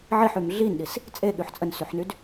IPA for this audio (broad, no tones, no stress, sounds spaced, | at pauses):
ʕ i ħ y m ɮ i n ɗ i s | t͡sʼ e ɠ y ħ t͡sʼ ə n s y ħ n y d